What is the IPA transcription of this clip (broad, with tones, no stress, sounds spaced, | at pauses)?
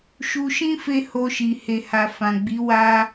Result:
ʃ u˧ ʃ ĩ˦ f e˧ h o˧ ʃ i˨ h e˨ h a˨ f ã˨ ɡ͡b i˨˦ w a˧